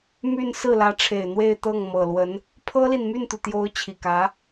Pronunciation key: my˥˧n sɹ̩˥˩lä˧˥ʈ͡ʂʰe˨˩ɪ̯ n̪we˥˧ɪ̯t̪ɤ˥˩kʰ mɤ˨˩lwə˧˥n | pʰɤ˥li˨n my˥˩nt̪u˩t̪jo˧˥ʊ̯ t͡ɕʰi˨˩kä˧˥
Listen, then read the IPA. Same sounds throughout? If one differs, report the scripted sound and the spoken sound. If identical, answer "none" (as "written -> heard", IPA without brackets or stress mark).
kʰ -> ŋ